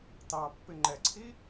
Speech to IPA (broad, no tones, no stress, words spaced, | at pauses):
tɑpːɪ ŋ͡ǃɛǀʰi